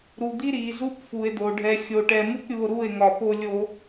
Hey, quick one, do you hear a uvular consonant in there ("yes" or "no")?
no